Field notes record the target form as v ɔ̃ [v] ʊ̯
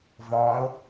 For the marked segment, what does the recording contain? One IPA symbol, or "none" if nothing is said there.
none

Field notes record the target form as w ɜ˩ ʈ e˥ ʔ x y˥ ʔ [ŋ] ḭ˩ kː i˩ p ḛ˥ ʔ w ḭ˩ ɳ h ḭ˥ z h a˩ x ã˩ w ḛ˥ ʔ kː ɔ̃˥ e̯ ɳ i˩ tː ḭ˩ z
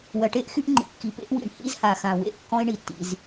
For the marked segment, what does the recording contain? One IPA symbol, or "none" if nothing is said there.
ŋ͡ǃ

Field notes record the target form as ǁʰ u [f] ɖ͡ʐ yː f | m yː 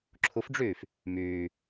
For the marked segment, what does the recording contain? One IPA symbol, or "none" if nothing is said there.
f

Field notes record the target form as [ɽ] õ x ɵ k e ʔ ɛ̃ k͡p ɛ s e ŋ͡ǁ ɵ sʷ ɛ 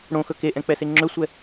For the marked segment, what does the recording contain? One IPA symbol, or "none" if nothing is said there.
ɽ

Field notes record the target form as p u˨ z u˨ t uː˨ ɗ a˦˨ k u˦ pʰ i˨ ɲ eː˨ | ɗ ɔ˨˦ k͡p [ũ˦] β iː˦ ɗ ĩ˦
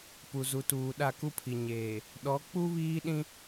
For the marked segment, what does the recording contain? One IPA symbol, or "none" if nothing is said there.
u˦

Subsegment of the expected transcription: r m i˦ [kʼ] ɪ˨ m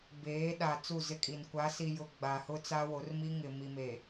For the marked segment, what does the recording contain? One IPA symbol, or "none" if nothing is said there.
ŋ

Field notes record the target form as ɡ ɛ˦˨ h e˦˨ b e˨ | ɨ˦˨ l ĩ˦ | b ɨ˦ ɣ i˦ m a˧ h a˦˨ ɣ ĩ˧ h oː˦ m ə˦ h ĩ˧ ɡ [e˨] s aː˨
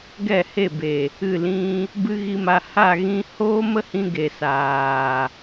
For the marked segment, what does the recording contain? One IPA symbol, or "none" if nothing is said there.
e˨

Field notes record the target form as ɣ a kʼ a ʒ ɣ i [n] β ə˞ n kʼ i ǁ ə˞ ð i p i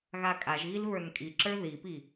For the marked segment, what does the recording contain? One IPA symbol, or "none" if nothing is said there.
l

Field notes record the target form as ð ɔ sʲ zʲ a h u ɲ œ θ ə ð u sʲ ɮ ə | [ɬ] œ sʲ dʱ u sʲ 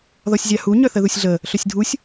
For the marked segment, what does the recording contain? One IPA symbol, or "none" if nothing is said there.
ɬ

